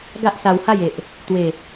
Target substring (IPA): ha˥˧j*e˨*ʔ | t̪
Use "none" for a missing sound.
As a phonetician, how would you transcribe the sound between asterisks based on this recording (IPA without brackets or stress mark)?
e˨